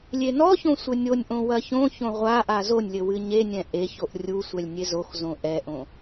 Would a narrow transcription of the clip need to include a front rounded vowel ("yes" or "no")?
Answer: no